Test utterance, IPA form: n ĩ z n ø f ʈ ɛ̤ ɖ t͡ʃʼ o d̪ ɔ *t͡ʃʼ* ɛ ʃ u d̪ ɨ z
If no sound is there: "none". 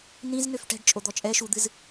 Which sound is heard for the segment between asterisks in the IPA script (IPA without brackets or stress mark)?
t͡ʃʼ